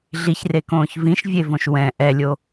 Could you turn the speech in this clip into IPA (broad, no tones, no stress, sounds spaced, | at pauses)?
ɮ i ç r e k õː ç v ĩ ʃ vʲ e v õ ʃ w ɛ̃ ʔ ɛ lʲ o